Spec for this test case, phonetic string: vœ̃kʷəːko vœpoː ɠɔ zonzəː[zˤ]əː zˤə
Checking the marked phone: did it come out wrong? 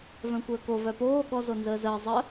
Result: yes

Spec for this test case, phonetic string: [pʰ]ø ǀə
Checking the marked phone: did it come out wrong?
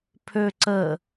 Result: no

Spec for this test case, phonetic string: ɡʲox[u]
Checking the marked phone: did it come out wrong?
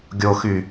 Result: yes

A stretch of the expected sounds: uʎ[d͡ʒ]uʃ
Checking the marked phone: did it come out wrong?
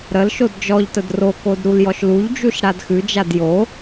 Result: no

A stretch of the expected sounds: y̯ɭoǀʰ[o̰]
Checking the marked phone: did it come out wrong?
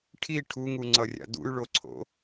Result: no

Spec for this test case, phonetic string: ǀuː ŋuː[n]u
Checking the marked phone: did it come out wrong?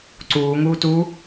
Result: yes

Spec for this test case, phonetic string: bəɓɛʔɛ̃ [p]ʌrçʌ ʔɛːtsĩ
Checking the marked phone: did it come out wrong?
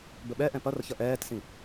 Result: no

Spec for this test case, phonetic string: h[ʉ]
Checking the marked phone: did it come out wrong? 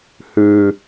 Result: no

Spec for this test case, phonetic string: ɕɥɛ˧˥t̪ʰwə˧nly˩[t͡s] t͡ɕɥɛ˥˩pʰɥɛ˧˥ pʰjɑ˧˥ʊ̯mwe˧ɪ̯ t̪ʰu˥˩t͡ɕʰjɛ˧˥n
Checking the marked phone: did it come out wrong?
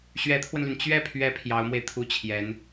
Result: yes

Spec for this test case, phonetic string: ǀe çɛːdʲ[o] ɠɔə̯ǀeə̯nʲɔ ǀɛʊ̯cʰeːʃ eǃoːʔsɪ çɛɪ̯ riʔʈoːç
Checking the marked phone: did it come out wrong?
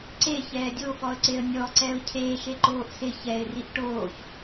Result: no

